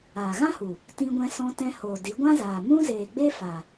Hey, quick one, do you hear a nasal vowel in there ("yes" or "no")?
yes